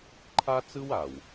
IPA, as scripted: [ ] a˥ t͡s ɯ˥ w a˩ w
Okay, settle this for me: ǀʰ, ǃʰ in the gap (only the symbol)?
ǃʰ